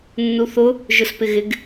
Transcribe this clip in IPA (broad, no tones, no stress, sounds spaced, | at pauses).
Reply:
nː u θ ʊ | ʒ ʊ s p ɪ ɣ ɪ ɡ